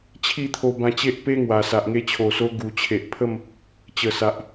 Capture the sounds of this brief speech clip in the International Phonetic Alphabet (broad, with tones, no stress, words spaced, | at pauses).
t͡ɕʰi˥˧t̪ʰo˧bã˧t͡ɕe˦ʔ pe˦ŋwa˨˩ sa˨ʔ ŋe˧t͡ɕʰo˨˩so˧ ɡu˨˩t͡ɕʰe˨ʔpʰə˥˧m | t͡ɕə˨˩sa˨ʔ